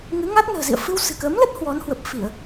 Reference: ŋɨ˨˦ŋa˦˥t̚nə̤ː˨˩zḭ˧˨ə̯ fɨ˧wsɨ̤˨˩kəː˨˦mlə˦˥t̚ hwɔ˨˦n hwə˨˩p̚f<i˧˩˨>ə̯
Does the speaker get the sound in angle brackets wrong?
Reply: no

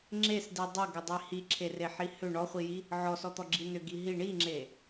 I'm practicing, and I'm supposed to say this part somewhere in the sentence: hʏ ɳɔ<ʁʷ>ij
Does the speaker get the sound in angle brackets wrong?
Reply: yes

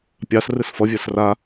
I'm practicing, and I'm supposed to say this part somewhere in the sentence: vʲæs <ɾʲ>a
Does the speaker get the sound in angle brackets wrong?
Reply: yes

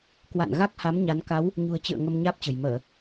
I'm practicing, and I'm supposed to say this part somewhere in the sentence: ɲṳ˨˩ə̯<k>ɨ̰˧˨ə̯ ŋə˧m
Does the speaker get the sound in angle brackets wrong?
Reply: yes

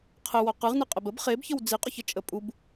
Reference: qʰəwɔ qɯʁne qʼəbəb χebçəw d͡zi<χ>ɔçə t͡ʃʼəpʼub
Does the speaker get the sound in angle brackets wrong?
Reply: yes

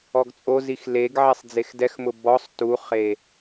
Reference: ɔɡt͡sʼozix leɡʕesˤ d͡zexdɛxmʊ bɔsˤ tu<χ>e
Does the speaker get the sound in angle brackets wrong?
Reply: no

